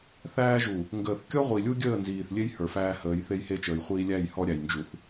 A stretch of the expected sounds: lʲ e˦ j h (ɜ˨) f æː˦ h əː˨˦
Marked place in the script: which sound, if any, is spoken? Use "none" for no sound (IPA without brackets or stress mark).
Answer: ə˞˨